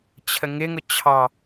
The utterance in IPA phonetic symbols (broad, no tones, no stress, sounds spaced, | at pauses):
t͡ɕʰ ə ŋ ɪ ŋ ʊ t͡ɕʰ ɑ